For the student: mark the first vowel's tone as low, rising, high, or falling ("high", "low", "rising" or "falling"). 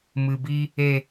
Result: low